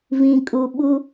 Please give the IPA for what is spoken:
v ĩ˨ kʼ u˨ ɓ u˦

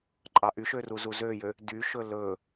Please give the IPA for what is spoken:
ǃʼ ɑ ʔ y ʃ ø r u z u z ø j ø | d y ʃ ɵ l ɵ

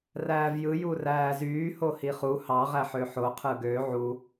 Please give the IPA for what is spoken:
r æː v j ɯ j u r æː z yː h o h i χ u h ɑ ʁ æ ħ ø ħ o qʰ ɯ ɡ ø ʕ u

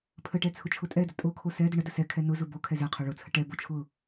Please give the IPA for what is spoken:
pʰ ə ʈ ɛ t͡sʰ ʊ t͡ʃʰ ʊ tʼ ɛ d ə tʼ o kʰ o s ɛ d ʊ ɳ ə d ə s ɛ kʰ ɛ n ʊ z ʊ b o kʰ ɛ z ɛ qʰ o ɭ ʊ t͡sʰ ə ʈ ɛ b o t͡ʃʰ ʊ

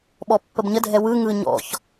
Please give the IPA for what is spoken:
ɓ ɔ pː ə b ɲ ə dʱ ɛ w ɯ ŋ ɯ ɲ ɔ̰ ç

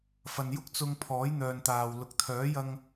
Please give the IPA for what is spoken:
f ɐ˨ n j ʊ˥ k̚ t͡s ʊ˧ ŋ pʰ ɔː˨˥ j n̪ œː˨ n t̪ aː˨ w l ʊ˨ k̚ t̪ʰ œː˨˥ j ɐ˧ ŋ

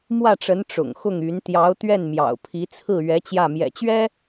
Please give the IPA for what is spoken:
m w ä˥˩ ʈ͡ʂ ə˧˥ n ʈ͡ʂ ʊ̰˨˩ ŋ x ʊ˥˩ ŋ y˧˥ n t̪ j ɑ˧˥ ʊ̯ t̪ ɥ ɛ˥˩ n m j ɑ̰˨˩ ʊ̯ pʰ i˧˥ t͡sʰ ɹ̩˥˩ ɥ ɛ˧˥ t͡ɕ j ä˥˩ m j ɛ̰˨˩ t͡ɕ ɥ ɛ˥

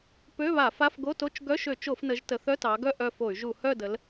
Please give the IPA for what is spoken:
p ø˧˥˧ β a˧˩˧ f a˧˥˧ f ɡ o˧˥˧ t o˧˥˧ t͡ʃ ɡ œ˧˥˧ ʃ ø˧˩˧ t͡ʃ o˧˩˧ f n ə˩˧ ʒ t ə˩˧ θ œ˧˥˧ t ɑ˩˧ ɡ œ˦˨ ʔ œ˦˨ f o˧˩˧ y̯ ʒ u˧˩˧ h œ˦˨ d ə˩˧ l

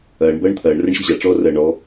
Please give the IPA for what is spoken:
ɐː ɳ b ɐː ɳ t̪ʰ ɐː ɳ r ɐ ɳ ɕ ɘ ʑ a ʈ͡ʂ ɔː r ɐː ɳ ɔ

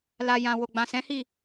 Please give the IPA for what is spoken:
l a˨ j ã˨ w o˨ ɡ͡b ã˨ s ɛ̃˨˦ h i˦˨

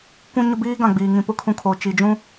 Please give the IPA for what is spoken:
kʷ ũ˨ ɲ ʊ˦ b iː˦ ɡ ã˨ ɡ͡b iː˨ ŋ ĩ˨ p ʊ˦ kʰ ũ˨ kʰ o˨ t͡ʃ i˨ d͡ʒ ũ˦

